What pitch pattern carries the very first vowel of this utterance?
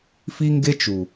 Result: high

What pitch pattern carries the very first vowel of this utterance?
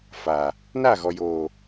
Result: low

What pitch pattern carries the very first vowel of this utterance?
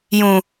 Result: low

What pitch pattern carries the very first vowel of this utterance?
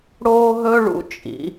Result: high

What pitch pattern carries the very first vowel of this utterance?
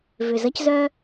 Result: low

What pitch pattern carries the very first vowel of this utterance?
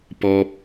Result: high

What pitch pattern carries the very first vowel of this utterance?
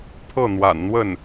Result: falling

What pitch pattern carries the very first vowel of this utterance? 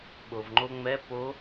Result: low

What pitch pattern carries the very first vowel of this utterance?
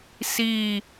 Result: falling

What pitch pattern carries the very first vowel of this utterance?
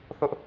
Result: high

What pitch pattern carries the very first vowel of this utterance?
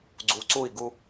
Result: rising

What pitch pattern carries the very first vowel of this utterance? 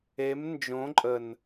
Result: rising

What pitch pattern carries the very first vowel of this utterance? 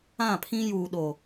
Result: falling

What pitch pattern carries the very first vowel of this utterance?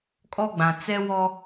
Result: high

